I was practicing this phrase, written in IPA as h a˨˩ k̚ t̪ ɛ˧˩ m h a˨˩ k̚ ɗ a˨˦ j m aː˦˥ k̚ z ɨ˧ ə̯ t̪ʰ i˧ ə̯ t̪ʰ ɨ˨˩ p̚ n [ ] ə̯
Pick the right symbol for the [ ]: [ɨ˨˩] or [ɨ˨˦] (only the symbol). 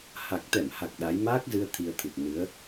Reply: ɨ˨˦